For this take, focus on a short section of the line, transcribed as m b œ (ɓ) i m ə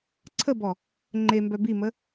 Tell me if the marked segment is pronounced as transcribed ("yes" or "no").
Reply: no